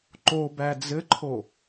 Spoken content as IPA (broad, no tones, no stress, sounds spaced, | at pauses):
ǃ o b æ d͡z ɘ ǃʰ o